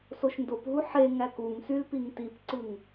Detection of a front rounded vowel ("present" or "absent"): present